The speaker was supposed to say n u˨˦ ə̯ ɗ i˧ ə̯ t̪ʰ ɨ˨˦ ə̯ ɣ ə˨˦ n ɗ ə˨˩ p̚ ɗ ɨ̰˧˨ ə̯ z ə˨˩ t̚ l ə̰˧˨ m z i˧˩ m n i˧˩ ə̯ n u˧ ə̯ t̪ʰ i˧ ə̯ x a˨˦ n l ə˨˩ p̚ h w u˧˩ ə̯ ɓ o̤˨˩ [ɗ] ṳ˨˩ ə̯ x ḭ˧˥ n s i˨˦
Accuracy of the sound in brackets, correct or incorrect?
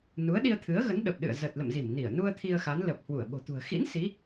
incorrect